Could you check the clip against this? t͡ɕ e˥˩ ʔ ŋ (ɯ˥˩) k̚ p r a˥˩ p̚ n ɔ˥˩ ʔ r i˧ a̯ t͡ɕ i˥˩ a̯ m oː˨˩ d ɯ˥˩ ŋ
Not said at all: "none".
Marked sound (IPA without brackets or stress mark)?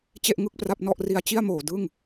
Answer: ɯ˥˩